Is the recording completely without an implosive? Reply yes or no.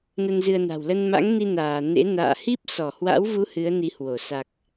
yes